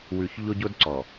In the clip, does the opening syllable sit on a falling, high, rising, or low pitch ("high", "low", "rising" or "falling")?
low